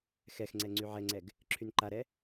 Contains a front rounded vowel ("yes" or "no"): yes